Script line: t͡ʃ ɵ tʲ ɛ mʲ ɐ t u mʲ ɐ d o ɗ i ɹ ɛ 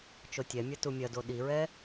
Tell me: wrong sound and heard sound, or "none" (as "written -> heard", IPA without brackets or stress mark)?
ɵ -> o